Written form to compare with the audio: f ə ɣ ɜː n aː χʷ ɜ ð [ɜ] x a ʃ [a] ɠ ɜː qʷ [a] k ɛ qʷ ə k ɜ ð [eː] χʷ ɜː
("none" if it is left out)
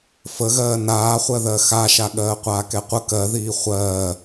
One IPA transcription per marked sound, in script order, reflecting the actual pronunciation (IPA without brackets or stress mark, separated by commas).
ɜ, a, aː, iː